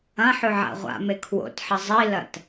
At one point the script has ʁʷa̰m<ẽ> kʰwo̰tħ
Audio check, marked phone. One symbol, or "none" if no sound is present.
e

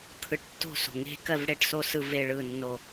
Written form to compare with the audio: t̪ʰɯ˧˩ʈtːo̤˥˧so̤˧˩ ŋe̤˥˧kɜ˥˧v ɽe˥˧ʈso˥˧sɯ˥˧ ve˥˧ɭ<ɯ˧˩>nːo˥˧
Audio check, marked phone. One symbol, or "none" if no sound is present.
ɯ˥˧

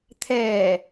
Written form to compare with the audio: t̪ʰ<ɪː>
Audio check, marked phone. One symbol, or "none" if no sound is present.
ɛː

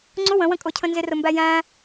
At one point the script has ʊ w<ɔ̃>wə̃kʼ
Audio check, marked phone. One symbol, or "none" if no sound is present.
ə̃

